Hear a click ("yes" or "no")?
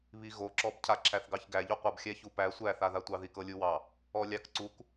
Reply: yes